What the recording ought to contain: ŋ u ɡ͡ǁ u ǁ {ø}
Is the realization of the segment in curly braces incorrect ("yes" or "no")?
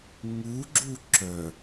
yes